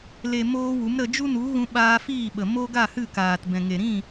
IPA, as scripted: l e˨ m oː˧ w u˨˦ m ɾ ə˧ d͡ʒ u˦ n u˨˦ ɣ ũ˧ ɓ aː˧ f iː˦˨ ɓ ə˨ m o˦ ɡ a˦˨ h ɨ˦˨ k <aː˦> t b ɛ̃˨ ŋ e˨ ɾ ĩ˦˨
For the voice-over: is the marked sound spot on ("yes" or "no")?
no